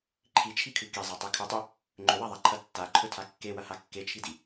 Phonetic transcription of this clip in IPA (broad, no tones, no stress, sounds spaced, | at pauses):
ǃʰ i t͡ʃʰ i kʰ ʉ k i zˤ a tˤ i kʰ ɵ tˤ ɵ | ŋ͡ǃ ɵ w a ðˤ a ǃʰ ɐ tː a ǃʰ ɵ tʰ a kː e w ɐ h a kː e t͡ʃʰ i d i